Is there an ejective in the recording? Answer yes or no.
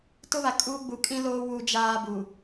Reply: yes